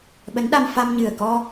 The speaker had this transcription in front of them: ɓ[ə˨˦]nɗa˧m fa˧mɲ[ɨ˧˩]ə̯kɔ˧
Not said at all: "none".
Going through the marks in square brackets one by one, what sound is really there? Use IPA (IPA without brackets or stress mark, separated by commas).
ə˨˦, ɨ˨˩